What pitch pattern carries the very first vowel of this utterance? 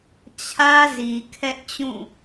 high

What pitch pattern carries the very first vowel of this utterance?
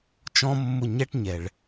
high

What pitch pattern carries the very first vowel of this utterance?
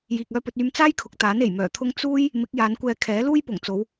low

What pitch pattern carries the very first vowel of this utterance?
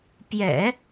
low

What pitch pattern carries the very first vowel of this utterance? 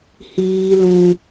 low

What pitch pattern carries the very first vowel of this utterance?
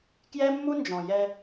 high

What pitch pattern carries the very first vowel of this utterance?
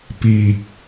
low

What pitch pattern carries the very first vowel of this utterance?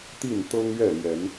falling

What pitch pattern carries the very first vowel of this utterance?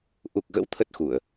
low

